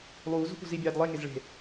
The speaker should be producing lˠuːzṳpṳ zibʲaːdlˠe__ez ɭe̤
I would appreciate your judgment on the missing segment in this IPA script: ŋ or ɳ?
ŋ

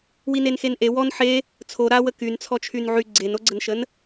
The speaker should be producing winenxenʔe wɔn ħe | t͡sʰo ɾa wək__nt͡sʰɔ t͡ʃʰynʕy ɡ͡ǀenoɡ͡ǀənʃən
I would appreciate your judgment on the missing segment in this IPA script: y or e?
y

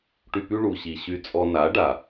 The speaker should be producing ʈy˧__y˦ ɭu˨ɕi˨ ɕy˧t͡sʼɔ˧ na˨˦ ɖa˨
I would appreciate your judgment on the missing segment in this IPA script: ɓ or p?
p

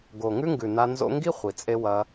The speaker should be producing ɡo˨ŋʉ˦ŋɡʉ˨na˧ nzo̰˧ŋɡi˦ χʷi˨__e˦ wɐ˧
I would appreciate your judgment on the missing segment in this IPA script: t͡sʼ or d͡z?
t͡sʼ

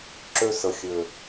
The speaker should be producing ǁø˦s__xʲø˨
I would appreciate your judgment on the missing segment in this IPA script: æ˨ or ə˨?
ə˨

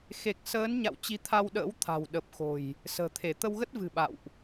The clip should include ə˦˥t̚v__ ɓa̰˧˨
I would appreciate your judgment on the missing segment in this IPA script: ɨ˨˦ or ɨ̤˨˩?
ɨ̤˨˩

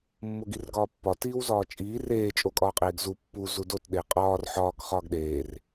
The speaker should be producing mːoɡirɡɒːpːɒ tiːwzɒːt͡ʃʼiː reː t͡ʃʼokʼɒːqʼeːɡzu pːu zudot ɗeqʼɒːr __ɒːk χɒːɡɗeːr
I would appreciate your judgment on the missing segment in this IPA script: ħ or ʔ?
ħ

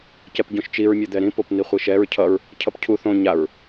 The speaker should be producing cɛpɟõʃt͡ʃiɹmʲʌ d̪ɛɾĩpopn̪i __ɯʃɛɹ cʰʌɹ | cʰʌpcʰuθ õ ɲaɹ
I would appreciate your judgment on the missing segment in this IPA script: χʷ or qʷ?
χʷ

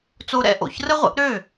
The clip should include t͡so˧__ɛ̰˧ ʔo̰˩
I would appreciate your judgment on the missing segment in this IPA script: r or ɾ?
ɾ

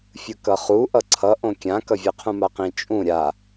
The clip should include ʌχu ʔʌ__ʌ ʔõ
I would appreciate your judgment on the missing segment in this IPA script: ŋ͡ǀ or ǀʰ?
ǀʰ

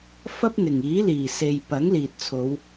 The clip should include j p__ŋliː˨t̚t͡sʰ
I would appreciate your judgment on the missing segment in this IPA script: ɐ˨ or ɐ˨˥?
ɐ˨˥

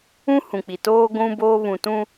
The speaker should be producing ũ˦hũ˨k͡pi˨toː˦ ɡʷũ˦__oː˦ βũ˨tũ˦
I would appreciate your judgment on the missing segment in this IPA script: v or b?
b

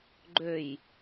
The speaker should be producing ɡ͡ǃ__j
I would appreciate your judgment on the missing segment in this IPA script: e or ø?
ø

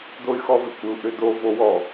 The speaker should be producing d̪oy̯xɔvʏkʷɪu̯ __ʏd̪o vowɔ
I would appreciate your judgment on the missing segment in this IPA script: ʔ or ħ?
ʔ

